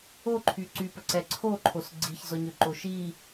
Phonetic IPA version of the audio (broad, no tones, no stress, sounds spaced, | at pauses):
o ǃʰ y ǀ y p ə ǀ ɛ ǀʰ o ǃʰ o s ɡ͡ǀ i ç z ɔ ɲ ø ǃ o ʃ i